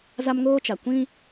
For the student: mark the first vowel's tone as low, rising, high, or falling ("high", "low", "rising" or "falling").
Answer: high